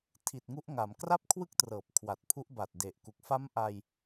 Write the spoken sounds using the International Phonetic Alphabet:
tʰ i˨˩ t̚ ŋ u˦˥ ʔ ŋ a˩˦ m k r a˥˩ p̚ kʰ w ɯ˥˩ k̚ t r ɤː˨˩ p̚ kʰ w a˨˩ t̚ pʰ u˦˥ ʔ b a˨˩ t̚ d e˨˩ ʔ k u˨˩ k̚ f a˦˥ m ʔ a˧ j

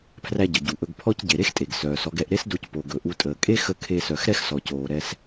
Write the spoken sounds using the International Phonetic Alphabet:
pʰ r æ˧ ɟ ə˩ ɟ u˩ ʔ ɵ˧ ɡ pʰ ɔ˥ c ɟ e˩ ɾ e˥ x tʼ e˩ ɡ s œː˩ s ɔ˧ ɡ ɛ˧ ʔ ɾ e˥ s d o˧ c p o˩ ɡ ɵ˩ ʔ u˧ tʼ əː˩ kʼ e˥ x ə˧ kʰ e˧ s œ˩ x ɾ ɛ˥ x s ɔ˩ c oː˩ ɾ ɛ˧ s

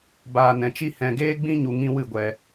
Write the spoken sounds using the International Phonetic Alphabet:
b aː˨ n ɛ̃˨ t͡ʃ i˧ h ɛ̃˨ ɡ eː˧ ɡ͡b ĩ˧ ɲ u˨ ŋ ĩ˧ w ɨ˦˨ ɡʷ ɛ˧

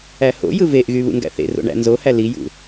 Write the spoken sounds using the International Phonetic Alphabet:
æ h o̰ j ɯ v e ʔ ɣ y β ṵ ŋ ɡ æ̰ θ ḛ r o̰ ɳ æ̰ n z o h æ l i j ṵ

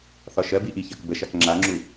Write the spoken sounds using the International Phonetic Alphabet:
θ ɒ ʃ ɜ b i ʔ i ç ɜ k b ə ʃ a k ŋ͡ǁ a ŋ͡ǁ u

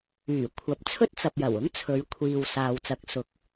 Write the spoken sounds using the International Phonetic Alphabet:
yː˨˩ kʷʰ ɐ˨˥ p̚ t͡sʰ ɵ˥ t̚ t͡s ɐ˨ p̚ j ɐ˨˩ w ʊ˥ ŋ t͡sʰ ɵ˨˧ ɥ kʷʰ iː˨ w s aː˨ w t͡s ɐ˨˥ k̚ s ʊ˨˥ k̚

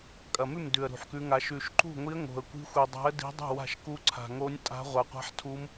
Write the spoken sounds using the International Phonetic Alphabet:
kʼ ɐ˨˩ m ʉ˥˩ m d ʉ˨˩ ə̯ ɾ ṳ˨˩ ħ k ʉ˧˥ ŋ a˧˥ ʃ ʉ˨˩ ʃ ǃ ṳ˥˩ ŋʷ i˧˥ ə̯ ŋ o̤˨˩ ə̯ kʷ i̤˧˥ xʷ i˨˩ dˤ a̤˧˥ ə̯ d i̤˧˥ dˤ ṳ˥˩ w a̤˥˩ ʃ k u˧˥ ǀʰ a̤˨˩ ŋ o˧˥ nʲ tʼ a̤˧˥ ʁʷ a˨˩ qʷ a̤˧˥ ħ tʰ u˧˥ m

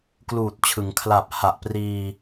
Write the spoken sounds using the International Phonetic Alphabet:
k l uː˨˩ t̚ t͡ɕʰ ɯ˩˦ ŋ kʰ l a˨˩ p̚ h a˨˩ ʔ p r iː˧

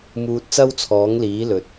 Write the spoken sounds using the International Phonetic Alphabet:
m uː˧ t̚ t͡s ɐ˥ w t͡sʰ ɔː˨˥ ŋ l iː˨˥ l ɵ˨ t̚

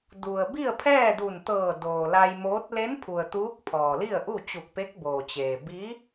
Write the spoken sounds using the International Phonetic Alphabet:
d u˩ ə̯ b i˥˨ ə̯ pʰ ɛː˥˨ d u˧˩ n t̪ ɤː˧˩ d oː˩ l a˧ j m oː˧˥ t̚ l e˧˥ n pʰ u˩ ə̯ t̪ uː˧˥ k̚ pʰ ɔː˩ l i˥˨ ə̯ ʔ u˥˨ t͡ɕ u˧˩ k̚ p e˧˥ k̚ b oː˩ t͡ɕ eː˩ b i˧˥

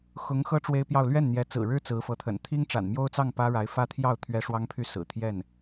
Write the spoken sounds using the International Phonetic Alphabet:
x ʊ˧˥ ŋ x ɤ˥ ʈ͡ʂ w e˥ ɪ̯ p j ɑ˥˧ ʊ̯ l ɥ ɛ˥˩ n n̪ j ɛ˧˥ t͡s ɹ̩˨˩ ɻ ɻ̩˥ t͡s ɹ̩˧˥ f ɤ˧˥ t̪ʰ ə̰˨˩ n t̪ʰ i˥ ŋ ʈ͡ʂ a̰˨˩ n m j o˥ ʊ̯ t͡s ɑ˥˩ ŋ p ä˥ ɻ a˧˥ ɪ̯ f ä˥ t̪ʰ j ɑ˥˩ ʊ̯ t̪ʰ ɥ ɛ˥ ʂ w ɑ˥ ŋ pʰ y˥˩ s ɹ̩˨˩ t̪ʰ j ɛ˥˩ n

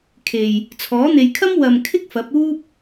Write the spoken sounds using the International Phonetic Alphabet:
kʰ e˨ j | t͡sʰ ɔː˨˥ n̪ e˨˧ j kʰ ɐ˥ m w ɐ˨ m kʰ ɪ˥ k̚ f ɐ˨˥ p̚ uː˥ p̚

